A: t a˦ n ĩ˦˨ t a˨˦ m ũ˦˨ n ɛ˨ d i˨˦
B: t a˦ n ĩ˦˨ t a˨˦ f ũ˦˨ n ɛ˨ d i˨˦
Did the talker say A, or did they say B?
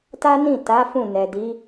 B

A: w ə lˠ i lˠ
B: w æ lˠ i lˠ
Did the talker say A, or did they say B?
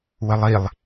A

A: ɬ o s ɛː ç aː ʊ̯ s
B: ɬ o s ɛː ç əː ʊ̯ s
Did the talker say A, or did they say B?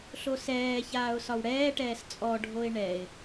A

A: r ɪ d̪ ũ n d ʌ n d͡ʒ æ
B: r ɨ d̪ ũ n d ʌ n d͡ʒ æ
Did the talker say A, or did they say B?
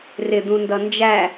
A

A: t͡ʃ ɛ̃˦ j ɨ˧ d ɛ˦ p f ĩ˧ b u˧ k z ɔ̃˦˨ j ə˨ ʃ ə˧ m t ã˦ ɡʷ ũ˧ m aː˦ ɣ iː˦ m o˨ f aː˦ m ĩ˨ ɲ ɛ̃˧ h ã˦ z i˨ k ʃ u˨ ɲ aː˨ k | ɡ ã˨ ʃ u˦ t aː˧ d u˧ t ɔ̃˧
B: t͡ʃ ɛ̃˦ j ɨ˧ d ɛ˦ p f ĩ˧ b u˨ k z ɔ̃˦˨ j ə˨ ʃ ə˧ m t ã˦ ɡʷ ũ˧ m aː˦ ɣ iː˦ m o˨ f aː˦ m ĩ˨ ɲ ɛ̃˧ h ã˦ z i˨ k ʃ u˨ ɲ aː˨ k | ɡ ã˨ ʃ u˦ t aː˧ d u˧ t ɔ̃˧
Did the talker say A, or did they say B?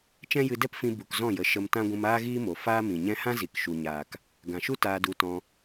B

